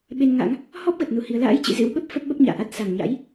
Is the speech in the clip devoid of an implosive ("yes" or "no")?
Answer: no